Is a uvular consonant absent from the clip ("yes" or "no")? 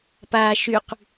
no